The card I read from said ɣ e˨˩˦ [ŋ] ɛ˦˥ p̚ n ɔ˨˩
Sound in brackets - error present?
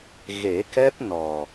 yes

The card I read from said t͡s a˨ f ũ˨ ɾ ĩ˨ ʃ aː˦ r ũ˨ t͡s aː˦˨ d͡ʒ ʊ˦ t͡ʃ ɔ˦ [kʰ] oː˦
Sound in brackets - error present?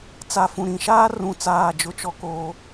yes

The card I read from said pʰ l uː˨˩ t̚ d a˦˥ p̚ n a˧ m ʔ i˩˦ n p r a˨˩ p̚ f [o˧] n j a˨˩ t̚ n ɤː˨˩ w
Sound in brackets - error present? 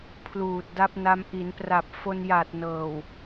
no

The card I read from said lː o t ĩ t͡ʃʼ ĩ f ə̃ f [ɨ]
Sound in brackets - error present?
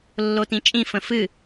no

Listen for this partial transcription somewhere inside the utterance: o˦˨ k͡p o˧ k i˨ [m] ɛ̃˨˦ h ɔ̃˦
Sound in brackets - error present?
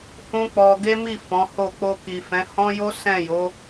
yes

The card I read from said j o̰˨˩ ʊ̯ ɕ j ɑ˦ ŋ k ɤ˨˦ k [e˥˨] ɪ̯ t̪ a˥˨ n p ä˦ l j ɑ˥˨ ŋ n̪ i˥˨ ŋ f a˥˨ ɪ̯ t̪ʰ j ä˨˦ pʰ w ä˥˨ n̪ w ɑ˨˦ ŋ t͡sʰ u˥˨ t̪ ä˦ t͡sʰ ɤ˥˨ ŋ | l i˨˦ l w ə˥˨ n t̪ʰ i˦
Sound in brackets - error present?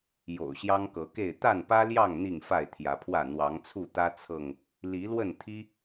no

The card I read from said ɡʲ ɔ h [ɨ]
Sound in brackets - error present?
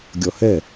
yes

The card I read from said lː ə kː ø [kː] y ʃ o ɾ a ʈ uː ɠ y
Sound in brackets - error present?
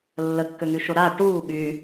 yes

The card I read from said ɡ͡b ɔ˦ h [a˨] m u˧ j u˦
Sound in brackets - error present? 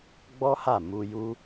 yes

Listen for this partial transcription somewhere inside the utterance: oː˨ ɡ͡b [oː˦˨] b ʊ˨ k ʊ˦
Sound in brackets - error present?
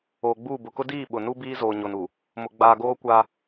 yes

